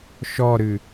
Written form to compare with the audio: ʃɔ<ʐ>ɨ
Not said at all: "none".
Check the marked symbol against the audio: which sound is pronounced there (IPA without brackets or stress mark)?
ɾ